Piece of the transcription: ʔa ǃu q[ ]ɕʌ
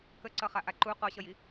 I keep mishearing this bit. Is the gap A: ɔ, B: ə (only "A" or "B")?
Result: A